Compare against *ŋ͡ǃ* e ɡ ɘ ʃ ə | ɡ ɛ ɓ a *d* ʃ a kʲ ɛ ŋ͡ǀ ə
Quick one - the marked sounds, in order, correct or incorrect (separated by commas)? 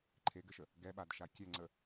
incorrect, correct